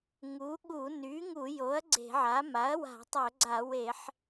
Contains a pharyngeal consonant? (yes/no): yes